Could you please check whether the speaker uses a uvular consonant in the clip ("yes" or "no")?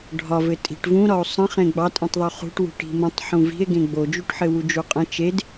yes